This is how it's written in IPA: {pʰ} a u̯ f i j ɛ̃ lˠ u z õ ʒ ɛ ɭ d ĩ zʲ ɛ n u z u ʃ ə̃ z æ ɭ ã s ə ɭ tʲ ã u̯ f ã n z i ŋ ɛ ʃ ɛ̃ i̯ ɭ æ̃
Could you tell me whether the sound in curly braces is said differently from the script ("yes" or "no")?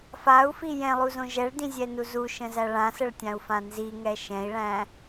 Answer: yes